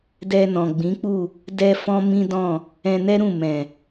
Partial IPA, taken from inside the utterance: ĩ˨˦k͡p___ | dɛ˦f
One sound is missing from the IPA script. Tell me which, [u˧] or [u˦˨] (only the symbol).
u˦˨